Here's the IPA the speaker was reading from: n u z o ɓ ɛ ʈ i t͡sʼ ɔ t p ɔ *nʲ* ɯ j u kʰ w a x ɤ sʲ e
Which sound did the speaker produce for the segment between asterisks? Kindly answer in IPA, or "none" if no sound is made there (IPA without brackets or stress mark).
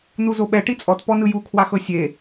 n